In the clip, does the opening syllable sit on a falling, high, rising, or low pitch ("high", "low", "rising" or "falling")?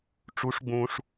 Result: rising